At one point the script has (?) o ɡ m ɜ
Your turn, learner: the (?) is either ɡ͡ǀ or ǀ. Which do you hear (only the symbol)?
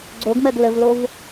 ɡ͡ǀ